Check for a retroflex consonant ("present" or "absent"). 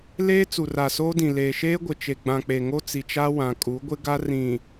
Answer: absent